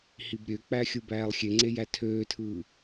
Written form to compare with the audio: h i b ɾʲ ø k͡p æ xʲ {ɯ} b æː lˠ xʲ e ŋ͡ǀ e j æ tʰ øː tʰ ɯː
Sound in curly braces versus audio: correct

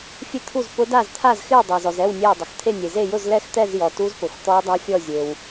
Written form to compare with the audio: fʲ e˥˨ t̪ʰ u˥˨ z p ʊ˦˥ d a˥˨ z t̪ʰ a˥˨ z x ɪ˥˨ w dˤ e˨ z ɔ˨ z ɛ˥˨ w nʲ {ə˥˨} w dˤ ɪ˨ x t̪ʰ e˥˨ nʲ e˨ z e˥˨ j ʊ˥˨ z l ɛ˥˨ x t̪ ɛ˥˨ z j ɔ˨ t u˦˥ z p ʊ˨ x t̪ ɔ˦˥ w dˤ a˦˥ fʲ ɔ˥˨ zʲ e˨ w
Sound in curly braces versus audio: incorrect: ɛ˥˨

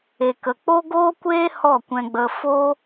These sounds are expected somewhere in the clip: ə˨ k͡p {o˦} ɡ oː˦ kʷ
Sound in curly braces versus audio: correct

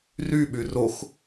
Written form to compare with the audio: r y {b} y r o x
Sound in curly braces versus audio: incorrect: ɓ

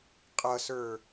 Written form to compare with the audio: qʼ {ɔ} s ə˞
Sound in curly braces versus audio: incorrect: ʌ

